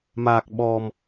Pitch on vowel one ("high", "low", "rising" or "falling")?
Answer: low